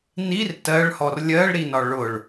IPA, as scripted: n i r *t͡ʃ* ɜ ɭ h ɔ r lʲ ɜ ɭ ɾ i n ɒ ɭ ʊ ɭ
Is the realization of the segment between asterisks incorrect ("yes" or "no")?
yes